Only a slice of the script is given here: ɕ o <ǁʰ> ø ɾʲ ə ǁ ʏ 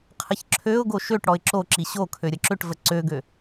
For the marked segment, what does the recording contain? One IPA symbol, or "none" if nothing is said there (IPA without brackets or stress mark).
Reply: kʰ